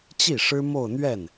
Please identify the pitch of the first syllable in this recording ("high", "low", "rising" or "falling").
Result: falling